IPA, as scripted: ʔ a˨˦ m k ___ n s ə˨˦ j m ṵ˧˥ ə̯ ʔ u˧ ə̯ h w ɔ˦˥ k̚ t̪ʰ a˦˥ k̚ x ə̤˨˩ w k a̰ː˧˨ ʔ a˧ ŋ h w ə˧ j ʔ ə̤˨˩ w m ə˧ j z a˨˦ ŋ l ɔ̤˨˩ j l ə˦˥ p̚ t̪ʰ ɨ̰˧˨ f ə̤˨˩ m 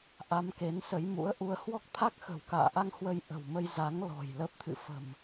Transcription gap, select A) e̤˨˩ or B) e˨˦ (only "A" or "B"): B